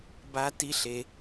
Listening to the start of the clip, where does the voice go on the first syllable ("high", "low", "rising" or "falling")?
high